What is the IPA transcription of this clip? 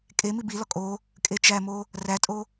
kʼ e m i b i l ɒ kʼ o | kʼ e t͡ʃ æ m o | r æ tʼ o

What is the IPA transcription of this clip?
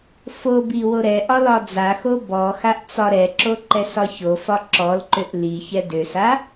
f o b i w o ɾ ɛ ʔ ɒ l ɒ d͡z a x o b ɔ x a ʔ t͡s ɒ ɾ ɛ ǁ o ǃ ɛ s ɒ ç o f ɒ ǁ ɔ l ǃ ø ʔ l i ç ɛ d ø s a

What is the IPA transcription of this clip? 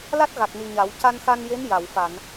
l a˦˥ t̚ ɣ a˨˩ k̚ n i˨˩ ɲ a˨˩˦ w c a˧ n x a˧ n j e˧˥ n j a˨˩˨ w f a˨˩˨ n

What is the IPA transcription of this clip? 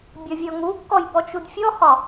bʲ ɒ vʲ ɔ ŋ u kː ɔ j b ɔ t͡ʃ u d fʲ ɔ h ɒ

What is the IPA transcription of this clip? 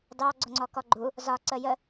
d ɑ ɡ͡ǀ ʊ ŋ͡ǀ ɔ k ɔ ɡ͡ǃ u | z ɒ ǀ ə j ə

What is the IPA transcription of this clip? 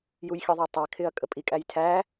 j u j xʲ ə ðˤ ɛ tˤ ɛ kʰ ɪ ɐ̯ kʼ ə pʼ i kʼ æ j tʰ æ

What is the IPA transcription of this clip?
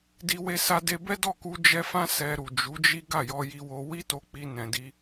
d i˧ w e˧ s a˧ d e˧ b ɛ˦ d ɔ˦˨ k u˧ d͡ʒ ɛ˧ f ã˦ s ɛ˧ ɾ u˨ d͡ʒ u˨˦ d͡ʒ i˦ ɡ a˦˨ j ɔ˧ j i˧ w o˧ w i˦ t o˧ k͡p i˧ n ɛ̃˧ d i˦

